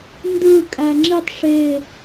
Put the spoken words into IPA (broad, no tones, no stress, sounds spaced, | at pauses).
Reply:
n d ɯ kʼ æ ŋ͡ǁ i tˤ ʂ e